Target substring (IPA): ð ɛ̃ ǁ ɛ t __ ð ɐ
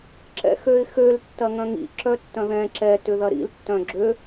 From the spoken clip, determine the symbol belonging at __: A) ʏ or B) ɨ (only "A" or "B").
A